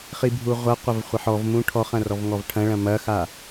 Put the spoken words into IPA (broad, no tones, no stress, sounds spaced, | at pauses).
χ i bʱ u ʁʷ ɐ qʷ ɐ v χʷ ɐ ħ ɔ v m ũ ʈʰ ɔ χ ɐ̃ r ɔ v ŋ ɔ v ʈʰ ɐ̃ ɭ ɐ̃ m ɐ x a